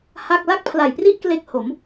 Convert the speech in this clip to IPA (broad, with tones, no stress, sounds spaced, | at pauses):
h a˥˩ k̚ l a˥˩ k̚ pʰ l a˨˩ j p r i˥˩ ʔ k l e˦˥ k̚ h o˩˦ m